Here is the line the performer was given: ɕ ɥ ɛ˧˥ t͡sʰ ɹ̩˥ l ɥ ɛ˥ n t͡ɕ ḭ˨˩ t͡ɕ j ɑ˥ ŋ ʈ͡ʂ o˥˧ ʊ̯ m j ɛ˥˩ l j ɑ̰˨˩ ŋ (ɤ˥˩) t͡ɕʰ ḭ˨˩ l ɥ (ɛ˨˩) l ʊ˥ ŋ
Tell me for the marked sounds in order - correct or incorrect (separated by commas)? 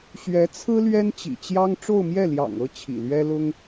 correct, incorrect